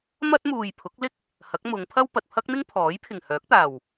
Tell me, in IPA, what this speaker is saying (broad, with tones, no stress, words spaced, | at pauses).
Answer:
mɐ˥t̚muː˨j pʰʊ˨˥k̚ lɪ˥k̚ | hɐ˨˥k̚mʊ˨˧ŋpʰɐ˥w pɐ˨t̚pʰɐ˥k̚n̪ɪ˥ŋpʰɔː˨˥j pʰɪ˨˩ŋhœː˨˥k̚t̪aː˨˩w